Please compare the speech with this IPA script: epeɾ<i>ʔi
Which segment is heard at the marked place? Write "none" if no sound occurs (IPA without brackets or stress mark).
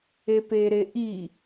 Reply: e